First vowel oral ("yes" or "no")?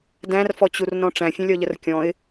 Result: no